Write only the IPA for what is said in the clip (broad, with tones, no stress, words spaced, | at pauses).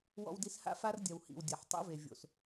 wɔ̰˧wdi˧sha̰˦ fa˦r dʲɐ˨whḭ˨w dʲɐ˨ħ tˤo̰˦ve˨ vʲo̰˨s